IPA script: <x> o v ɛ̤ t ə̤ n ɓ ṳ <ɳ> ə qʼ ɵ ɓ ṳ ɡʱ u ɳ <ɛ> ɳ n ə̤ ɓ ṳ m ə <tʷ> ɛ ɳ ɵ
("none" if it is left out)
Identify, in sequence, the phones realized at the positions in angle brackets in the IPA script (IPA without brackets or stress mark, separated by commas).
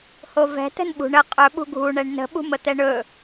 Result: h, ɳ, ɛ, t̪